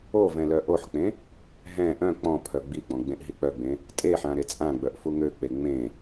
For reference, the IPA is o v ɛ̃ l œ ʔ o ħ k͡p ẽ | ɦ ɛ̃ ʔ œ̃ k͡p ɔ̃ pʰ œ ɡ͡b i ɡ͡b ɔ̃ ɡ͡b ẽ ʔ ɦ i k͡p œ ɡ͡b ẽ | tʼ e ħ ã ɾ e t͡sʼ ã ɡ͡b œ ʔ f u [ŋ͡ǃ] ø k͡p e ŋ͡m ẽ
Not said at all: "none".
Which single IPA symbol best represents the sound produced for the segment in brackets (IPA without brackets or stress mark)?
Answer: ŋ